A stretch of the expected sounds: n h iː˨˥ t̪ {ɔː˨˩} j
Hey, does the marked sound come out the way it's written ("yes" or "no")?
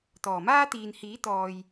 no